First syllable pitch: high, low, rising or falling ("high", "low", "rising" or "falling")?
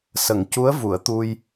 low